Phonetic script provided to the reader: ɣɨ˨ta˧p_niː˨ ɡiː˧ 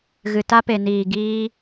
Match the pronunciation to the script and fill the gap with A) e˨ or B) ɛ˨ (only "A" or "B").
A